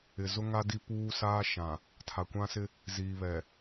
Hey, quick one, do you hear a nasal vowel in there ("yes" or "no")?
yes